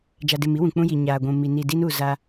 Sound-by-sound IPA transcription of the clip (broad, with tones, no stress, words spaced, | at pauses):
d͡ʒa˨dɪ˨m i˦wũ˨ k͡pũ˦ji˨ ɲaː˨ɡʷũ˨ mi˨ ni˨di˦nu˨ za˦